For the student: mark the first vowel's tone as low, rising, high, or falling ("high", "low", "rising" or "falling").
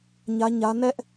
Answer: high